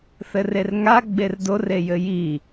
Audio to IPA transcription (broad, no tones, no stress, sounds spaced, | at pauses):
θ ɘ r e r ŋ a ɡ͡b e r d o r e j ɘ j i